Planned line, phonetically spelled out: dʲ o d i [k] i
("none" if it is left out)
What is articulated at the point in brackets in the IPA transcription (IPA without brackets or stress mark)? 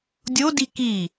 k